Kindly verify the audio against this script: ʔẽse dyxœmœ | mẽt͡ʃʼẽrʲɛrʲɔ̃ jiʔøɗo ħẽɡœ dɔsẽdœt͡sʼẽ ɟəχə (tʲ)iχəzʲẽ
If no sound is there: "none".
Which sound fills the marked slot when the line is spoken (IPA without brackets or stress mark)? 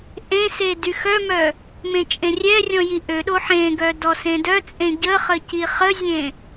c